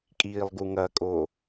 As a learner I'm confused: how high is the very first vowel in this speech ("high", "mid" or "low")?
high